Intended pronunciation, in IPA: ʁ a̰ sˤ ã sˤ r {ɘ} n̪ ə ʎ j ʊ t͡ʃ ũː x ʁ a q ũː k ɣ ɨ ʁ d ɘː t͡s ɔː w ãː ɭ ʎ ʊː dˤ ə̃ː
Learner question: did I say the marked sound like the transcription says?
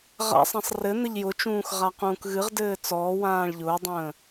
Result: yes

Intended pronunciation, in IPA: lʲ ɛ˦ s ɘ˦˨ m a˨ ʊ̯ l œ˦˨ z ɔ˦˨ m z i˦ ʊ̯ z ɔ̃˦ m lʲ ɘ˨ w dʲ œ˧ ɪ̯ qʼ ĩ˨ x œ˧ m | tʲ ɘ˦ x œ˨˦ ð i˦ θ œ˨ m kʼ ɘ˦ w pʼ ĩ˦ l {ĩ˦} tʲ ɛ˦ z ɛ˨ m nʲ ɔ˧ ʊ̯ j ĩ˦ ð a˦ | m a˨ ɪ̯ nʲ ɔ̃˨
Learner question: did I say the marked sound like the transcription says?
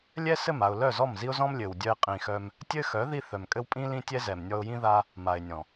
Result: yes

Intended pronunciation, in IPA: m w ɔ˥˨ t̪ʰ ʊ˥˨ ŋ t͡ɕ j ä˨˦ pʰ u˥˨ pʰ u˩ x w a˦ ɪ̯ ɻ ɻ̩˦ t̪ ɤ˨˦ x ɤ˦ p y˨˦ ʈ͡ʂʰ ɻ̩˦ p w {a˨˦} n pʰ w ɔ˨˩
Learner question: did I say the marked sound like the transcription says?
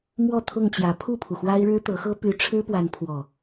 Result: yes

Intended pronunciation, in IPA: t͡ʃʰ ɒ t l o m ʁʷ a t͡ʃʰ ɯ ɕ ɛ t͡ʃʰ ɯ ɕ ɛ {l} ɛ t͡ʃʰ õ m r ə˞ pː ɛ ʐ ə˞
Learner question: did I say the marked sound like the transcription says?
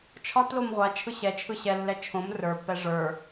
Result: no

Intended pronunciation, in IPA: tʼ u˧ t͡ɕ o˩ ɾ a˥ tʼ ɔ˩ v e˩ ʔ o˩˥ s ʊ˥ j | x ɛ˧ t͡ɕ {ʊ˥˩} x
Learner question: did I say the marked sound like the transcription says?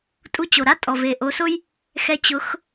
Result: no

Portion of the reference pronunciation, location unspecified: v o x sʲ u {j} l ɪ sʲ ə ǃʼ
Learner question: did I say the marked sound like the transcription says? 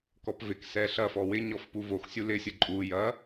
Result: no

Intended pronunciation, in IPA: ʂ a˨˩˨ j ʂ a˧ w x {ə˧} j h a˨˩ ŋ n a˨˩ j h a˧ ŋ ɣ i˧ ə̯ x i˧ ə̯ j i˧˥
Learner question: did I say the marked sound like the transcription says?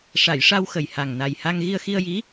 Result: no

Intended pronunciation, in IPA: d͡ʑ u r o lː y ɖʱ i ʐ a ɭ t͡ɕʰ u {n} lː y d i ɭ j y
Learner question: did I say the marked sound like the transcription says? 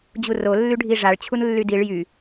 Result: yes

